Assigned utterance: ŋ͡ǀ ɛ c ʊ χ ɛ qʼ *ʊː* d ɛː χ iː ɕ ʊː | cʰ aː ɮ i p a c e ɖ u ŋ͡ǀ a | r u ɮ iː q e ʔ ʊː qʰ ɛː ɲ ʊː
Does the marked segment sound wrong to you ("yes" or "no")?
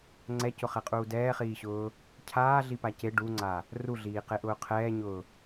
yes